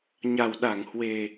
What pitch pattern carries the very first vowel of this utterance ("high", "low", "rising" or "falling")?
low